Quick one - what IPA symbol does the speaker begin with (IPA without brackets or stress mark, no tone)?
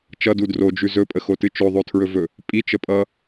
t͡ʃ